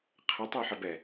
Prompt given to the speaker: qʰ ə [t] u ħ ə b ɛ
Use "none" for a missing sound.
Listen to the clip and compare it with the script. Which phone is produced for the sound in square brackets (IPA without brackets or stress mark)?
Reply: tˤ